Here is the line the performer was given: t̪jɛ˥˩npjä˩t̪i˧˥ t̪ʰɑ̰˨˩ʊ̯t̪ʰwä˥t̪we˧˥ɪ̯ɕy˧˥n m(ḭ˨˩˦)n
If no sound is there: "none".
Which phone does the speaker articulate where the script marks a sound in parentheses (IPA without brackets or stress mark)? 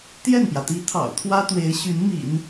ḭ˨˩˦